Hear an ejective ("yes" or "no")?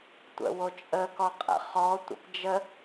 yes